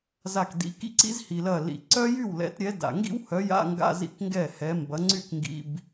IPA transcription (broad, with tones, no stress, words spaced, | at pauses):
za˧˩kdḭ˨˦kḭ˥ǀḭ˥z hi˩lɐ˧˩ lḭ˩ǀœ˥ jy˥˩wlɛ̰˨˦tɾʲɛ˨˦da̰˩ ŋɡḭ˥whœ˨˦ja̰˧˥˧ŋɡa̰˧˥˧ zḭ˥kŋɡɛ˥˩hɛ˨˦ mbɐ˨˦ŋ͡ǀy˥˩kŋɡḭ˧˥˧b